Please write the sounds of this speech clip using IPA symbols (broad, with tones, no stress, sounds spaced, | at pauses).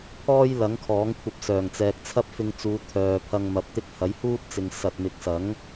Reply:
pʰ ɔː˥ j l ɐ˨˥ ŋ kʰ ɔː˨˥ ŋ kʷʰ ɐ˧ p̚ s œː˨˩ ŋ t͡s ɛː˨ k̚ t͡sʰ ɐ˥ p̚ f ɪ˧ ŋ t͡s uː˨˧ t̪ʰ œː˨ pʰ ɐ˧ ŋ m ɐ˨ p̚ t̪ ɪ˥ k̚ h ɐ˨˥ j h uː˥ t̚ t͡s ɪ˨ ŋ s ɐ˨ t̚ m ɪ˨ k̚ s ɐ˨˥ ŋ